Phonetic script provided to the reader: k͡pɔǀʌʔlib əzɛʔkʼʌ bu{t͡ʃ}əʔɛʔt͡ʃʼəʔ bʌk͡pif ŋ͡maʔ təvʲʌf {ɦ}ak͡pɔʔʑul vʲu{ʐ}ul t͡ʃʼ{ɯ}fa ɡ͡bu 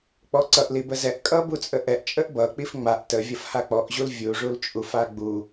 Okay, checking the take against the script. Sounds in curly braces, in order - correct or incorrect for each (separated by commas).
incorrect, incorrect, correct, incorrect